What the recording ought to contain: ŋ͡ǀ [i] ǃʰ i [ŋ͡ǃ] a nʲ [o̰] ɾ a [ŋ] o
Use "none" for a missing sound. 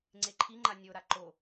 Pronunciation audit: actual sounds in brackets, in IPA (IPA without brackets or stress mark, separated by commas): e, ŋ͡ǃ, o, ǃ